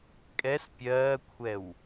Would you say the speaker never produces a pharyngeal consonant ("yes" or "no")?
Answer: yes